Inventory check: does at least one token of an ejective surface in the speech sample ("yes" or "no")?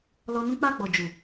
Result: no